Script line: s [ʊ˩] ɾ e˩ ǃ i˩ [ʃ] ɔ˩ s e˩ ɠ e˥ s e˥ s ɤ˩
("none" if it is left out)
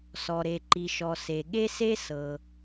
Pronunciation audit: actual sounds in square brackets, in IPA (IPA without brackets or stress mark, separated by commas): ɔ˩, ʃ